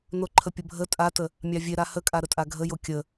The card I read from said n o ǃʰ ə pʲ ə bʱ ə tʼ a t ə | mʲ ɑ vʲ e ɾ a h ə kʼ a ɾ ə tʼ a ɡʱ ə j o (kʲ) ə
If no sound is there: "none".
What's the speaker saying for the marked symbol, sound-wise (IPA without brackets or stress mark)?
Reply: kʲ